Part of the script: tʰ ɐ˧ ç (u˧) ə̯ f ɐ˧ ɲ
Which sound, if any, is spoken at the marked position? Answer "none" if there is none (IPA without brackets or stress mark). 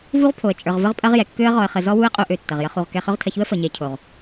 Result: u˦